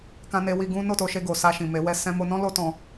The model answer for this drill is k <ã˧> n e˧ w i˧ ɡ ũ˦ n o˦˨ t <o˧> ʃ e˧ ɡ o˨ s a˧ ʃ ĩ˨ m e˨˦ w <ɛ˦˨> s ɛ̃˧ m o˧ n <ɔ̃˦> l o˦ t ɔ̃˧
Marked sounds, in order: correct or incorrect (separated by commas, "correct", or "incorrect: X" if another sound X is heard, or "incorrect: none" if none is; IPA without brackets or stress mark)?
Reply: correct, correct, correct, correct